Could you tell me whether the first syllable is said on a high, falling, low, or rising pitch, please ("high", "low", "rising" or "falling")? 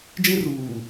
high